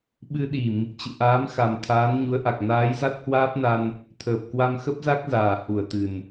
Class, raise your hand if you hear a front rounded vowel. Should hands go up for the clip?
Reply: no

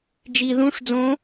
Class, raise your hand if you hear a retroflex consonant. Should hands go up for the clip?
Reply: yes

